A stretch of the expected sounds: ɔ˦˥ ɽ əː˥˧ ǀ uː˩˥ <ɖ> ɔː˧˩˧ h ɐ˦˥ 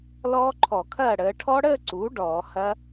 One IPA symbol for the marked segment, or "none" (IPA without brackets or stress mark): ɖ